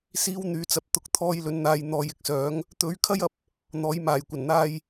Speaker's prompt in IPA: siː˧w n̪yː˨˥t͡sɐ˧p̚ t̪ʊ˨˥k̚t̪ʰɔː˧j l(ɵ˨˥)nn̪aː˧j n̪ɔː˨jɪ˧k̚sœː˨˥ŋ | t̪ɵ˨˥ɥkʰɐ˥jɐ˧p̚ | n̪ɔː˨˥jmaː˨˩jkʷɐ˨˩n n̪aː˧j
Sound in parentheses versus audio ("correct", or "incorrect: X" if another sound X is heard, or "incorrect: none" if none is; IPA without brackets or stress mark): correct